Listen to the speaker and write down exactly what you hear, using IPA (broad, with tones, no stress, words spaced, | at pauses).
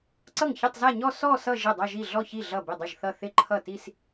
ǀʌ˥˩ŋçɪ˥˧tˤza˥˧ɲɔ˥˧ sɔ˥˧ sʌ˥˧ ʒɪ˥˩dˤʌ˥˧ʒi˥˩ ɮɔ˥˩çi˥˩ ɮʌ˥˩ bɪ˥˩dˤɪ˥˩ʒθʌ˥˩ θɪ˥˧ǃʰʌ˥˩ti˥˧s